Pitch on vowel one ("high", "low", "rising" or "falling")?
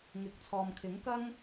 rising